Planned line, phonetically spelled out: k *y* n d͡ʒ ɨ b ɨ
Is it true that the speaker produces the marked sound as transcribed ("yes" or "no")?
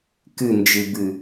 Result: no